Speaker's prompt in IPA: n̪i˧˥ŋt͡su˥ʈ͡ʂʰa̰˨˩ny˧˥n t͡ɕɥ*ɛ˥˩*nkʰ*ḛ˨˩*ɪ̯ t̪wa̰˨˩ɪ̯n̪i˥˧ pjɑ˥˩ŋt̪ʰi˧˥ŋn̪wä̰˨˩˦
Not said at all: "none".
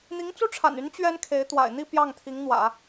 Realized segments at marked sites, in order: ɛ˥, e˧˥

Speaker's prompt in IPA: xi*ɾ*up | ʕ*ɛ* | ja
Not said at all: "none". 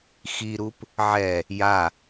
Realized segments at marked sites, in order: ɾ, ɛ

